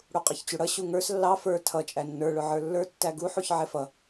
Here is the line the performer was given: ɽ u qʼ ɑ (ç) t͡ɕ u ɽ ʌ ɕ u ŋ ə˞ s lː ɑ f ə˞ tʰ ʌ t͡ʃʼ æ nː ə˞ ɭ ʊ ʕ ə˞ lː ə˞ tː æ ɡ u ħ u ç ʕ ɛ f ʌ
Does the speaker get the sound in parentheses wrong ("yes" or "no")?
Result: no